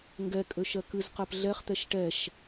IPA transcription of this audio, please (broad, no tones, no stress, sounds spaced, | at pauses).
ŋ ɡ ɛ kʼ ø ʃ ɜ k ɨ z q ɜ p ɮ ɛ χ t̪ ɛ ʃ ʈ ɛ ʃ